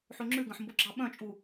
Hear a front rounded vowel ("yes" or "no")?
yes